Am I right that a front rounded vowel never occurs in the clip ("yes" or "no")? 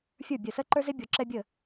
no